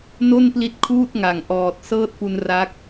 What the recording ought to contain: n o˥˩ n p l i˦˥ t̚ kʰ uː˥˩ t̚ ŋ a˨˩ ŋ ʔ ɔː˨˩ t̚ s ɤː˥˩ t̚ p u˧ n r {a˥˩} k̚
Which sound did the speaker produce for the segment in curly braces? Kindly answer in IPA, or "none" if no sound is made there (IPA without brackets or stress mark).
a˦˥